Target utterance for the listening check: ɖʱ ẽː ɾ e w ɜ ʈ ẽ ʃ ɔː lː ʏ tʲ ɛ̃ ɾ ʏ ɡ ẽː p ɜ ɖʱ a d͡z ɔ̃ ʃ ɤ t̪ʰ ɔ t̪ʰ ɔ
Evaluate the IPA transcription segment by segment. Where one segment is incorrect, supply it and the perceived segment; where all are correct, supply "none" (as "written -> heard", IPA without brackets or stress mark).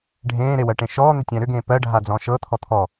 lː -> n̪